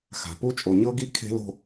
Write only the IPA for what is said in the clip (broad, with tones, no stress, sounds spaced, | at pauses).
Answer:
x a̤˨ p u˦˥ t͡ʃʼ o˨ ɲ ɤ˦˥ ɡ i˦˥ kʰ e̤˦˥ l o̤˥˧